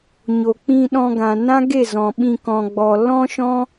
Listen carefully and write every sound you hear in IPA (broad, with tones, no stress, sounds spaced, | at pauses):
ɲ o˨ k͡p ĩ˧ ɗ ɔ̃˧ ɡ ã˨ n ã˦ ɡ e˦˨ z ɔ̃˨ ɓ ĩ˧ k ɔ̃˨ ɡ͡b ɔ˨ l ɔ̃˦ ʃ ɔ̃˦